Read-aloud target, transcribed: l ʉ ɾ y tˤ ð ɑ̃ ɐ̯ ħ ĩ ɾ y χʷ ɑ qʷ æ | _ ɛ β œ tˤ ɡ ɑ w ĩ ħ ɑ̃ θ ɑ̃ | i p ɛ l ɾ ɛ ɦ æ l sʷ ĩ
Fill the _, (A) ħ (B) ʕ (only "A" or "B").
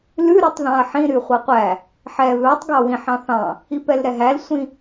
A